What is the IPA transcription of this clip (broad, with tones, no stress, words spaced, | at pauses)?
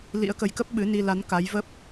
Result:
lḭ˧˥ə̯kə˨˦jkə˦˥p̚ ɓɨ˨˦ni˧ la˨˦n ka˨˦jvə˦˥p̚